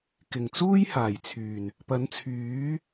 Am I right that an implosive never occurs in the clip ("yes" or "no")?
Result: yes